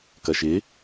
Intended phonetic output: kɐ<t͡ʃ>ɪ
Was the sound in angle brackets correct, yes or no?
no